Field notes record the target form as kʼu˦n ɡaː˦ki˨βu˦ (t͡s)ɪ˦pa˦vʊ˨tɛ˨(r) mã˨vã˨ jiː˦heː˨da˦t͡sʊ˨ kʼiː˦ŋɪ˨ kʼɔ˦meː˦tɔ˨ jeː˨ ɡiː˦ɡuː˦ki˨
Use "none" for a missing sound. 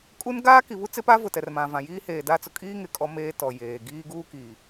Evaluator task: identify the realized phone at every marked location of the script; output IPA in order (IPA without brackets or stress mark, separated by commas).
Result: t͡s, r